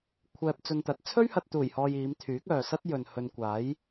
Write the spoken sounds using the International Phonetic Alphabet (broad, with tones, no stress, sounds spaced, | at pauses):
kʷʰ ɛː˧ p̚ t͡s ɵ˧ n t̪ ɐ˨˥ t̚ t͡sʰ ɵ˥ ɥ h ɐ˨ t̚ t̪ uː˨˩ j h ɔː˨ j iː˨˧ m t̪ʰ yː˨˥ k̚ œː˨ s ɐ˥ t̚ j ɵ˨ n h ɵ˧ n kʷ aː˨˥ j